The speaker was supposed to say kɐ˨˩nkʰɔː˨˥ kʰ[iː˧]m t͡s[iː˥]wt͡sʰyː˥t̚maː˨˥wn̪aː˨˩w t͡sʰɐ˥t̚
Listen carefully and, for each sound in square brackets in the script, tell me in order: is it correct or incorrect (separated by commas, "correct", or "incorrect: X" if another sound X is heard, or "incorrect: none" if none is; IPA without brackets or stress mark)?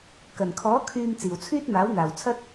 incorrect: yː˧, incorrect: iː˨˩